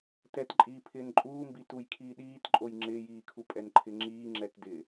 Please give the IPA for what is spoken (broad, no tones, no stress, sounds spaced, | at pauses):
t ɛ t ǃʼ iː pʰ ɪː n ǃʼ uː m b i t u j kʰ iː ɗ iː t ǃʼ o j ŋ͡ǁ ɪː j iː kʰ u pʼ ɛ n ǃʰ ɪ ŋ͡ǁ iː ŋ͡ǁ ɛ t d ɪ